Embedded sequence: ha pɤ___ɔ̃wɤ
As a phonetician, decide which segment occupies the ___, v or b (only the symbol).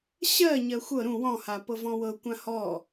v